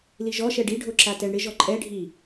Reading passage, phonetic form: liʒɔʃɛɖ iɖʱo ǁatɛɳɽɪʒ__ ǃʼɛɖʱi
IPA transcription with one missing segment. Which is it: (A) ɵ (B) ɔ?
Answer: B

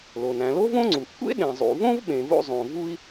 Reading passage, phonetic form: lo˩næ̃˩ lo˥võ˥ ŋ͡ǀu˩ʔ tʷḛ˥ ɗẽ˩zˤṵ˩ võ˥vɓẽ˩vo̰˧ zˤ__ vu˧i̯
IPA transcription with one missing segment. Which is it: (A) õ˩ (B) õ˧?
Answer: A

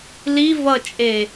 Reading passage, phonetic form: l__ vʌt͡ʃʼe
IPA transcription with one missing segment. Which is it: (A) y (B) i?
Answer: B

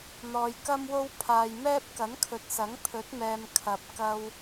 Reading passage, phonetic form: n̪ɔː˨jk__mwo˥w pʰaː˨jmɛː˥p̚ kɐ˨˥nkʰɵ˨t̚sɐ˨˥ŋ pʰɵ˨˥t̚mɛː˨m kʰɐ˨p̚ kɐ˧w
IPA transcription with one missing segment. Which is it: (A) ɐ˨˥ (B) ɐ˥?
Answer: B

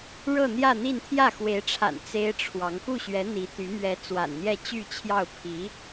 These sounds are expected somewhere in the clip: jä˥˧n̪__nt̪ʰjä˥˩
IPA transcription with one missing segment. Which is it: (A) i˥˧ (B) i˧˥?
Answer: A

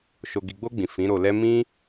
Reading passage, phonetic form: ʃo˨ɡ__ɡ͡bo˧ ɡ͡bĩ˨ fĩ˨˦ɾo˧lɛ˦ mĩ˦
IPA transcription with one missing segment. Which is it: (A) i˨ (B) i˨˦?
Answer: A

